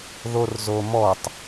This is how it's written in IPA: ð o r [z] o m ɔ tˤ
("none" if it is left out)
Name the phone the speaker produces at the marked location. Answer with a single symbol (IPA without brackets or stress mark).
z